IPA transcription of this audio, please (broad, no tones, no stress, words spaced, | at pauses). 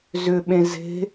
zʏɓẽ ze̤